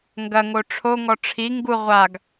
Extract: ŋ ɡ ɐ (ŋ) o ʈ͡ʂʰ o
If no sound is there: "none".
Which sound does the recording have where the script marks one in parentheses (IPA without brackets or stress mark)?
ŋ